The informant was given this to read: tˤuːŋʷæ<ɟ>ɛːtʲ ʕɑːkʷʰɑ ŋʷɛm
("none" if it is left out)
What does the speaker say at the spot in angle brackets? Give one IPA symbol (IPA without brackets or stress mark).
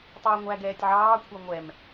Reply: ɡ